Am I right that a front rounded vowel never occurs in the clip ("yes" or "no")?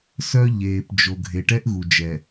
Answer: no